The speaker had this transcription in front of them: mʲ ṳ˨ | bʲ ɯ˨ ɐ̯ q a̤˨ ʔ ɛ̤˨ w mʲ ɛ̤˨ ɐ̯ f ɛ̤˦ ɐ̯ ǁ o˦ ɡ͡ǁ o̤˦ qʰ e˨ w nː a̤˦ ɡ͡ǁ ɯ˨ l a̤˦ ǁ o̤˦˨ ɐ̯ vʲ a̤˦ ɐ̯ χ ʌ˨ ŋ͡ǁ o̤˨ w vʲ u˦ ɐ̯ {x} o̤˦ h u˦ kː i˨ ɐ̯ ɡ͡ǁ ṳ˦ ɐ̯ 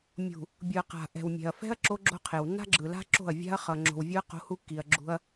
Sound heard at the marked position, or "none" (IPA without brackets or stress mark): q